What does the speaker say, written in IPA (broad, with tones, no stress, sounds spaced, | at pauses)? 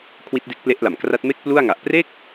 kʰ w i˦˥ t̚ d e˦˥ k̚ p l e˦˥ ʔ l a˨˩ m k r a˦˥ t̚ m e˥˩ k̚ p l u˥˩ a̯ ŋ a˨˩ ʔ p r e˥˩ k̚